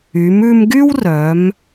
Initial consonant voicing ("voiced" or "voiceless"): voiced